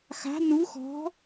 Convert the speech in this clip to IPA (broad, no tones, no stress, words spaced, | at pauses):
xa̤ nu xɔ̤